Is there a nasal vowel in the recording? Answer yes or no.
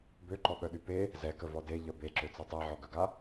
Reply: no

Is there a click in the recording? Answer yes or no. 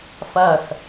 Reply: no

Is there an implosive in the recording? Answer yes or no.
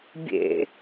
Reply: no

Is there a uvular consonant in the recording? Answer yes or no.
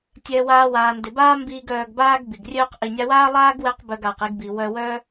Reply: yes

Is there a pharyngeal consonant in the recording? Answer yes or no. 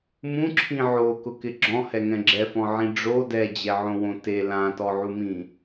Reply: yes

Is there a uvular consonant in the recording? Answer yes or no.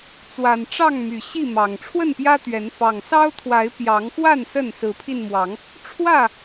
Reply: no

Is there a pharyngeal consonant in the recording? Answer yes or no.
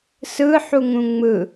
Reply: yes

